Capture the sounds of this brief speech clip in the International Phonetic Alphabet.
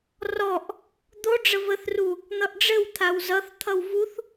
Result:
r ɔ ʔ | d̪ o ɖ͡ʐ ə v ə θ r u | n̪ ʌ ʔ ɖ͡ʐ ɘ w t̪ʰ a w z ʌ θ t̪ʰ ʌ w v u θ

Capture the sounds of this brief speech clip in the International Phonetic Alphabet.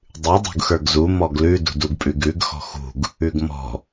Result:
dˤ ʉ dˤ ṳ ɡ x ə˞ ɡ z u m ɔ ɡ l ʉ d ṳ d u ɡ pʼ ʉ ɡ ʉ ɡ x ɔ̤ x ṳ ɡ | ʉ ɡ m ɔ̤

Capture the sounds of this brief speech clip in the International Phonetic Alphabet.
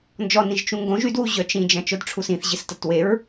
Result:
n d͡ʒ ɔ n ĩ ʒ t͡ʃ ũ ŋ ɡ õ ʒ y d w u ʑ œ t͡ʃ ĩ d͡ʒ ɐ̃ t͡ʃ œ d ʈ͡ʂʰ u s ĩ θ ʑ ɪ s t ɐ t w e ɹ

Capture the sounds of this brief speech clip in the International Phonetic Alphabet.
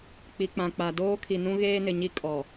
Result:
k͡p i˨ k͡p ã˨ k͡p a˨ d oː˦ kʰ i˨ n ũ˦ ɣ eː˦ n ɪ˨ ɲ i˦ kʼ ɔ˨

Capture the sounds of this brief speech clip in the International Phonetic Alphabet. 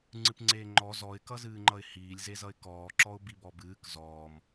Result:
ŋ͡ǀ ɨ p ŋ͡ǀ eː ŋ͡ǃ ɔ z ɔ ɪ̯ k ʌ z ɨː ŋ͡ǃ ʌ ɪ̯ h iː lʲ z e z ʌ ɪ̯ k ɔː ǁ ɔ ʊ̯ b i b ɔ b ɨː k z ɔː m

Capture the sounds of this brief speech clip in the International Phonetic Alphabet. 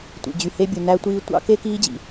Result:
tʷ ḭ˨ d͡ʑ y˨ h e˦ bʲ u˨ n æ˦ tʷ iː˦ tʷ ɑ̰˦ k e˦ k iː˦ d͡ʑ ḭ˨

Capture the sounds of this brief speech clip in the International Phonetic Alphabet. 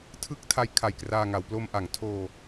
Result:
tʰ ɯ˦˥ k̚ tʰ a˦˥ j kʰ a˨˩ j k r aː˧ ŋ a˩˦ w p l o˧ m ʔ a˩˦ ŋ tʰ oː˧

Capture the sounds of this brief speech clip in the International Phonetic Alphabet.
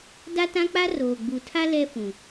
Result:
d a˦ t ã˦ k͡p a˦ r oː˨ ɡ͡b u˨ tʰ a˦ l ɛ˦ f ũ˨

